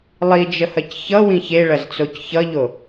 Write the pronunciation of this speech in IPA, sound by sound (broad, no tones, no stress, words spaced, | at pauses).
lˠid͡ʒəhɐc çʌwĩ çeɭɐzt͡soc çʌʎo